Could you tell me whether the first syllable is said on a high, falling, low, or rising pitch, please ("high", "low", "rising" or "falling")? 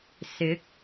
rising